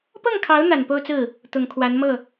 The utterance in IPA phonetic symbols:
p ɤ˥˩ ŋ kʰ ɑ˧˥ ʊ̯ n̪ a˨˩ n p o˥˧ ʊ̯ t͡s ɹ̩˥˩ | t̪ ʊ˨˩ ŋ kʰ w a˧˥ n m ɤ˥˩

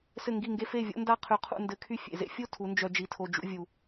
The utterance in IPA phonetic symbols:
s ɘ˦˨ ŋ ɡ i˦˨ ŋ ɡ e˦ f e˦˨ vʲ o̰˦ n d a˦ qʰ y˧ qʰ ṵ˧ n d ɘ˨˦ kʰ y˦ fʲ ḛ˨ z ḛ˦ fʲ o˦ tʰ u˨˦ n d͡ʒ œ˧ d͡ʒ i˨ tʰ o˨ d͡ʒ ṵ˧ vʲ u˨

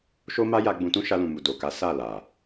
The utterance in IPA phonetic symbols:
ʃ o˦ m a˦ j a˧ ɡ͡b ũ˧ t ũ˦ ʃ a˧ l ũ˨ m u˨ d o˨ k a˨˦ s a˦˨ l a˨

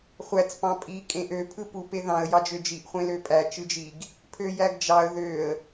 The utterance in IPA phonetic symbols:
χʷ æ t͡s p ɑ̃ pʼ i kʼ ẽ ʔ ø pʰ ɯ p u p e ð ɑ̃ ə̯ j ɑ d͡ʒ ø d͡ʒ i ʔ χʷ ẽ l ø pʼ æ t͡ʃ ɯ d͡ʒ i ɡ | pʰ ø j æ ɡ d͡ʒ ɑ ə̯ ð ø ə̯

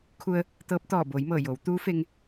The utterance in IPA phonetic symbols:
kʰ u˧ ə̯ | t̪ ɤː˧˥ p̚ t̪ ɔː˧˩ b oː˩˧ j m ɤː˧˩ j o˩˧ w t̪ uː˧˥ f e˧ ŋ

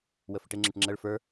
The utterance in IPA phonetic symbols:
w ə f ɪ ʈ ɪ ŋ͡ǁ ɪ ʈ ŋ͡ǁ ə ɭ f ə˞

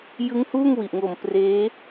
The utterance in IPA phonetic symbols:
j ɯ˦˥ ŋ h uː˥˩ ŋ w i˨˩ ʔ ŋ o˨˩ m p r eː˦˥

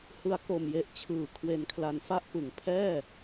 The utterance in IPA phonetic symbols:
h ɯ˩˦ a̯ k o˨˩ m j e˨˩ ʔ t͡ɕʰ ɯː˩˦ kʰ w e˨˩ n kʰ l a˨˩ n f a˦˥ ʔ p ɯ˨˩ ŋ pʰ ɛː˥˩

